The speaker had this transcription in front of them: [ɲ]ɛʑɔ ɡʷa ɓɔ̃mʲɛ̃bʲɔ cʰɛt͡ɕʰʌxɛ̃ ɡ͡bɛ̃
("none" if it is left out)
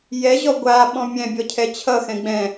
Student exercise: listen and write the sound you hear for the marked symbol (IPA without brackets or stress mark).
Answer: j